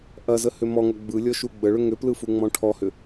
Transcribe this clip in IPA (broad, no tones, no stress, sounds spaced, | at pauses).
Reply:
ʔ ɐ z ə h ʏ m ɔ ŋ ɐ ɡ͡b ɯ lʲ ɔ ʃ u ɡ͡b ə ɭ ʏ ŋ ʏ p l ɯ f u ŋ͡m ɔ̃ ʈʰ ɔ h ʏ